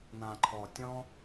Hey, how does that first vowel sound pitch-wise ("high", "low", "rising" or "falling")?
low